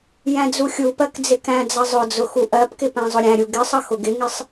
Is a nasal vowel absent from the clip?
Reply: no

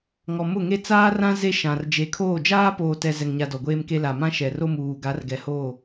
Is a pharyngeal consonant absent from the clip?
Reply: yes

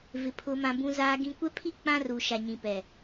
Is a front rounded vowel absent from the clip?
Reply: yes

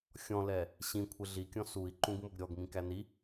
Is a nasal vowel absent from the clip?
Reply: no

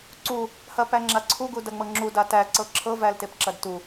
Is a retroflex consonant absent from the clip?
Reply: yes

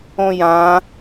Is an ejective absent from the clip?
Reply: yes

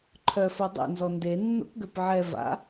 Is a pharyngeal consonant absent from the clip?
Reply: no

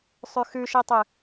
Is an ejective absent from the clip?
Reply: yes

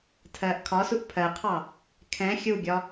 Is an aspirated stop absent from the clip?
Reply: no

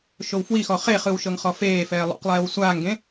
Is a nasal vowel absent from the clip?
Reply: no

